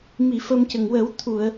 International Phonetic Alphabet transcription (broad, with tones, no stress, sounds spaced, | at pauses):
m i˨˩˨ f ə˧ m c ə˨˩ ŋ w ə˨˩˦ w t̪ʰ u˨˩˨ ə̯